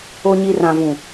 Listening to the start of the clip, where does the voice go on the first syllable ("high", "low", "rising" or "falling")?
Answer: low